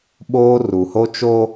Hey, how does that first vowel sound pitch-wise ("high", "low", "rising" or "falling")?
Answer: high